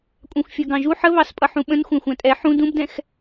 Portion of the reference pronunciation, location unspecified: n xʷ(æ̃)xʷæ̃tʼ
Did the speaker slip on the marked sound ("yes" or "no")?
no